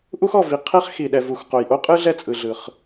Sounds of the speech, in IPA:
ʔu˥xɔ˩vi˩ qʰɛ˥χxi˩ ɗɛ˩vu˩x qo˩jʔo˥qʼɯ˥ ɮɛ˥t͡sʼɯ˩ɮɯ˩χ

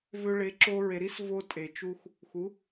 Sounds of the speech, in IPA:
vø˧ɭe˩˥ ǁo˧ ɹe˩ɾi˦˥s vo˧tʼe˩ t͡ʃu˧x | xu˩˥

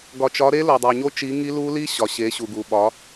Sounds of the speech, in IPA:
ɡɒ˨t͡ʃɒ˨˦ɾe˦˥ lo˨dˤo˨ ɲo˦˥t͡ʃi˨˦ŋi˦˥lu˦˥ li˦˥ ɕɒ˨ɕe˨˦ɕu˨ɡu˨ ɓɒ˨˦

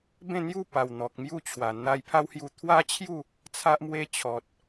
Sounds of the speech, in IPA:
bẽ˥˧n̪ju˥˧pa˨˩w n̪ɔ˨k̚mju˥˧t͡ɕʰwa˨˩ n̪a˧jpʰa˦whju˧ t̪ʰwa˦t͡ɕʰju˥˧ | t͡sʰa˦ʔmwe˦ t͡ɕʰɔ˨t̚

